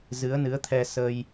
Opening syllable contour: rising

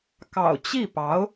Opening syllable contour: low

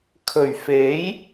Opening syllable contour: low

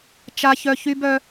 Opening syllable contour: high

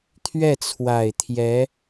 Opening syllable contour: falling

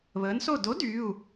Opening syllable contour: rising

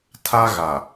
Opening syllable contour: high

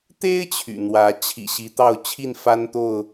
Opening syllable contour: high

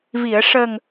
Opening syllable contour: low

